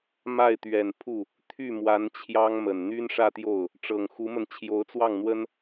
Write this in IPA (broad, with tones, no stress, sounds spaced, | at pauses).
m a˥˩ ɪ̯ t̪ ɥ ɛ˨˩ n pʰ u˥˩ | t̪ʰ y˥˩ m w a˧˥ n t͡ɕʰ j ɑ˥ ŋ m ə˨˩ n n̪ y˥ n ʂ ä˥˧ t̪ j o˥˩ ʊ̯ | ʈ͡ʂ ɤ˨˩ ŋ x u˧˥ m ə˧ n t͡ɕʰ j o˧˥ ʊ̯ t͡s w ɑ˥˩ ŋ n̪ w ə˥ n